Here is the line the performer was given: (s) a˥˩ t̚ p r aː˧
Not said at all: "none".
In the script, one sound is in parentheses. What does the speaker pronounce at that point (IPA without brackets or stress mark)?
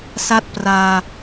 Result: s